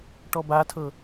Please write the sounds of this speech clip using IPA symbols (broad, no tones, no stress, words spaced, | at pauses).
ʈɔbatʰɤ